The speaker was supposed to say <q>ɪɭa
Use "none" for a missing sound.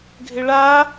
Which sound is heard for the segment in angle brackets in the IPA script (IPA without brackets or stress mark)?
ɡʱ